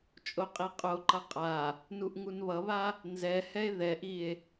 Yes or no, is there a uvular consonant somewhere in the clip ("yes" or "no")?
yes